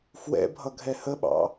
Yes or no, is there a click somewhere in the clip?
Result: no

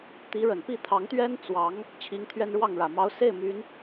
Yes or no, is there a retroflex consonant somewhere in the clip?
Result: yes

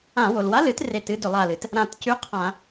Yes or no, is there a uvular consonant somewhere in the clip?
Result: yes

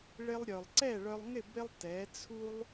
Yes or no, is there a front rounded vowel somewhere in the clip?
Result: yes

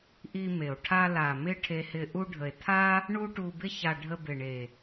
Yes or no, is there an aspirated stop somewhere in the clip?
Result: yes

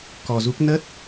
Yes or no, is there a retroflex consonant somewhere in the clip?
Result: no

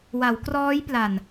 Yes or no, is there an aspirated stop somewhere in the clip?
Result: no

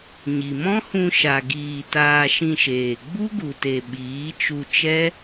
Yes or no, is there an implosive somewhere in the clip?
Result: yes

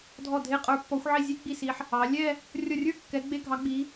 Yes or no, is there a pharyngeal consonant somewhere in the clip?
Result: yes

